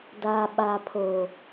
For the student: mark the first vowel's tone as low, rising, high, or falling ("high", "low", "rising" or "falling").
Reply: low